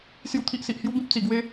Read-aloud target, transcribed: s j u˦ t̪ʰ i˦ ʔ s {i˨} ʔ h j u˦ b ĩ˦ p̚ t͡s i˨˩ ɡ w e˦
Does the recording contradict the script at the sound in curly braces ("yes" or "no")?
no